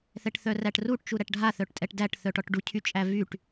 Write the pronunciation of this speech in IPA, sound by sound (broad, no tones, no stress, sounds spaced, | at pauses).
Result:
θ ɛ ʈ θ œ r æ ʈ r u ʈ t͡ʃ u ɾ æ ʈ ɖʱ a θ œ ʈ tʼ ɛ ʈ d æ ʈ θ œ ʈ ɔ ʈ ɖ u cʰ y t͡ʃʼ æ v y ʈ